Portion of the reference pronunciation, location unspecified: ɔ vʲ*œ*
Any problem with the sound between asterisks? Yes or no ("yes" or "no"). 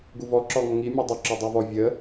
yes